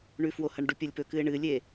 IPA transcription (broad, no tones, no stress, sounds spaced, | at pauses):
ɳ ʉ f w o h ɐ ɳ ɖ u pʲ ɐ lʲ p ɵ k ɨ ɪ̯ ɳ ɨ lʲ e